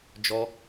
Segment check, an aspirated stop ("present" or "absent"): absent